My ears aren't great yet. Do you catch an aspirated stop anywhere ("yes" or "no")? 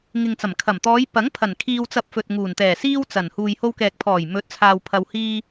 yes